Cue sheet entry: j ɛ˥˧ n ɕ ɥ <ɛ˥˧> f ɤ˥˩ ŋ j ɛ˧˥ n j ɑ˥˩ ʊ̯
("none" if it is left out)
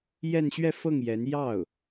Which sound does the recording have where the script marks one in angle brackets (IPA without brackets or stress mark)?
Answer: ɛ˥˧